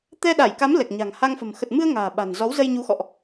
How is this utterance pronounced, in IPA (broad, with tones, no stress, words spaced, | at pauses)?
t̪ɛ˧ɗa˧˩jka˨˦m lɛ˨˩k̚ɲa̤˨˩ŋ ha˧ŋfə̤˨˩m xə˨˩t̚mɨ˧ə̯ ŋa̤ː˨˩ ɓa̤˨˩n zɔ˨˦wzə˧jɲu˨˦xɔ̰˧˨ʔ